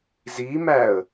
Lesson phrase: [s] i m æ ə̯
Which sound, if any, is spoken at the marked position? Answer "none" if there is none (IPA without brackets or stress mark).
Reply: z